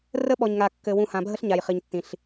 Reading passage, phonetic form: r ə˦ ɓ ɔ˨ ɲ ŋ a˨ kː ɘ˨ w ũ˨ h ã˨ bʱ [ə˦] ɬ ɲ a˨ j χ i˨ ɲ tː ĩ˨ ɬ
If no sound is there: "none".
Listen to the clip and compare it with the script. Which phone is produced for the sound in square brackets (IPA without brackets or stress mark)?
ə˦